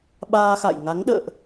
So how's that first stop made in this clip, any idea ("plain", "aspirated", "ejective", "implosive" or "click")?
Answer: implosive